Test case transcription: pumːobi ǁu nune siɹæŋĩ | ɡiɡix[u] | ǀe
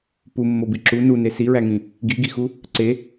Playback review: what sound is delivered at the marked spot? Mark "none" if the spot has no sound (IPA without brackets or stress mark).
u